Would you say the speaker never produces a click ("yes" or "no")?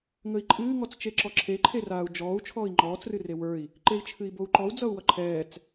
no